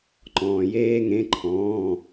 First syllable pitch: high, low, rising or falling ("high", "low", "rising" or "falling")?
low